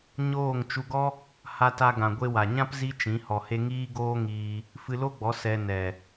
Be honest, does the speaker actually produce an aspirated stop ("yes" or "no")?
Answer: no